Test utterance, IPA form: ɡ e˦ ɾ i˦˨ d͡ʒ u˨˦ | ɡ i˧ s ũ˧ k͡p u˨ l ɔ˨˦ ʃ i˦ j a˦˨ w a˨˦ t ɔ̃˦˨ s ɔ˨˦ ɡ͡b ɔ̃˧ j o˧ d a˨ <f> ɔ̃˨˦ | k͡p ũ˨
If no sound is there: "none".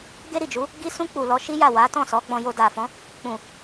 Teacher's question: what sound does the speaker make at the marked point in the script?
f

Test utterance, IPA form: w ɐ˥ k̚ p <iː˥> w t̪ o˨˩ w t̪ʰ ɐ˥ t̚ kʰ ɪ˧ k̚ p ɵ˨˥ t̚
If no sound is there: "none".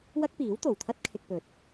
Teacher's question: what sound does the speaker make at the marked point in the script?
iː˨˥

